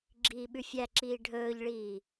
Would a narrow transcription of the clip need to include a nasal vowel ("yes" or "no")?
no